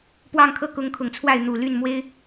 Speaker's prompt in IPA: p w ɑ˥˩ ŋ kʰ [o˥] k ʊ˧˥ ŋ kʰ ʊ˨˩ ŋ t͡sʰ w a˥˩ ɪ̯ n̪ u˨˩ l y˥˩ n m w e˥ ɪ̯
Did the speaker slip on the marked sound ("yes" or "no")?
yes